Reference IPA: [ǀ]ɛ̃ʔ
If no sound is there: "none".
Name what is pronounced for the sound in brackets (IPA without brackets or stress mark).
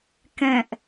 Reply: k